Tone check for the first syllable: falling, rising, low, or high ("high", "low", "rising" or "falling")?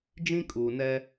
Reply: high